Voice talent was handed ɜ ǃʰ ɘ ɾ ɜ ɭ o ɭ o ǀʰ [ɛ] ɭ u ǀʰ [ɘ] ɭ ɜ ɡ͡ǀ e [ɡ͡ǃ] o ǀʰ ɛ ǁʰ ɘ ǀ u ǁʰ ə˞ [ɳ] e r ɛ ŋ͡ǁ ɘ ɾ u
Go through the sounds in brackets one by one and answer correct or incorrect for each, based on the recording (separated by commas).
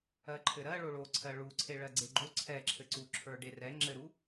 incorrect, incorrect, correct, incorrect